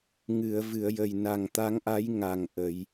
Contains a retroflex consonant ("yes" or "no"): no